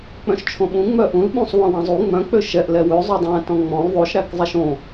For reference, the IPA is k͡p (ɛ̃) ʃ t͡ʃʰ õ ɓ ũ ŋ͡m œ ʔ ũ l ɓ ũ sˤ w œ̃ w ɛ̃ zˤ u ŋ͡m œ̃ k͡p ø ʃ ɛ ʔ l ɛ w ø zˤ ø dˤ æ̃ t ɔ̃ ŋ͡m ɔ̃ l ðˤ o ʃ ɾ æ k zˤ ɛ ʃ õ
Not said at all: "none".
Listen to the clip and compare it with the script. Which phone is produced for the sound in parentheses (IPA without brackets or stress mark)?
œ̃